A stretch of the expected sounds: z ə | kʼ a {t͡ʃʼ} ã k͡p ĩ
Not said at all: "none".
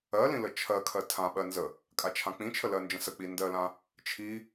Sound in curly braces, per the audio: t͡ʃʰ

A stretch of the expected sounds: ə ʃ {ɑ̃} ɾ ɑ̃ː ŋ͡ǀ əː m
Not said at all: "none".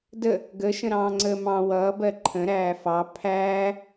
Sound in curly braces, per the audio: ə̃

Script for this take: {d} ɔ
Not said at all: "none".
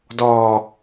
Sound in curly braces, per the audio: d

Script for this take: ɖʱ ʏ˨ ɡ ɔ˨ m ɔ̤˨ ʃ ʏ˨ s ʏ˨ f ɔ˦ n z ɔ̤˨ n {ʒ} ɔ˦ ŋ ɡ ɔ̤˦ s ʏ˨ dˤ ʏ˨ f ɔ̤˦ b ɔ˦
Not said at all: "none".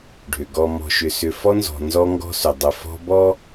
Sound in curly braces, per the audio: z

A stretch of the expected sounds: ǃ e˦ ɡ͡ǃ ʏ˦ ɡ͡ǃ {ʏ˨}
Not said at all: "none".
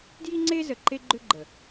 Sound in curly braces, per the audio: ə˨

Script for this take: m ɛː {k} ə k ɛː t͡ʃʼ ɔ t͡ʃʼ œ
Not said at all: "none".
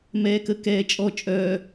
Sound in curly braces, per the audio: k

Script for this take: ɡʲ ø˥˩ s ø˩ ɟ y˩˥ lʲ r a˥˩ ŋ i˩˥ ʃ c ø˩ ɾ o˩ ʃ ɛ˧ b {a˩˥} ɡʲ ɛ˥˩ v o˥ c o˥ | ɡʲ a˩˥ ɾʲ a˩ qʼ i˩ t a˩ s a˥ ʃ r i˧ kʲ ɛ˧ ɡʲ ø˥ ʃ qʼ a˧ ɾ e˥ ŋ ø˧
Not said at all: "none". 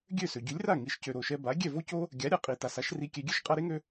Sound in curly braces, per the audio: a˩˥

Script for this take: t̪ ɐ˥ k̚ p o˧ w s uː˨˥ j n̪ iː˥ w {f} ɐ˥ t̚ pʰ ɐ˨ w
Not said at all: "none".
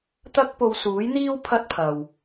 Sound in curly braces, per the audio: pʰ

